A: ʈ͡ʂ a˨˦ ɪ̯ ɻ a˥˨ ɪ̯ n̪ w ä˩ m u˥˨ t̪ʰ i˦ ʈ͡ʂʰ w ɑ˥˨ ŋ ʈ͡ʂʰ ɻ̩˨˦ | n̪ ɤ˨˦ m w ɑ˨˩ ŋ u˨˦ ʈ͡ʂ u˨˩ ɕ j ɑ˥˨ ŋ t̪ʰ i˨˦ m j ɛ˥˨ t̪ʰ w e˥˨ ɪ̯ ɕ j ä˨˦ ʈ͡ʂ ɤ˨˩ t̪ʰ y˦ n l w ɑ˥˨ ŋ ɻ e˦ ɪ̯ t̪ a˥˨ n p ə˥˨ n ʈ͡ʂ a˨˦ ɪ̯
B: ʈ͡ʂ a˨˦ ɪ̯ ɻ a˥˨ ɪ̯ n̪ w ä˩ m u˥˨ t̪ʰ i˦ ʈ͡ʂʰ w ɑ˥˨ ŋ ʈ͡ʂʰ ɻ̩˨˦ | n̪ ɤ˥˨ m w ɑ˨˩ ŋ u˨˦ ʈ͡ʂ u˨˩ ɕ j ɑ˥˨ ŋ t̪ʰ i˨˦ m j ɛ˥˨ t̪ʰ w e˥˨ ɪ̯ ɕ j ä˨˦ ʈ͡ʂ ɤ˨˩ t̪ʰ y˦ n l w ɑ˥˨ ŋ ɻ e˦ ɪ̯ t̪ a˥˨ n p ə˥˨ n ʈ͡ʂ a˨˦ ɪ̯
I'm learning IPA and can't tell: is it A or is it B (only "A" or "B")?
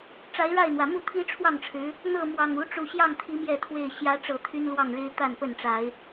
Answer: B